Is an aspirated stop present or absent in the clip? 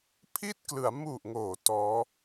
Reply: present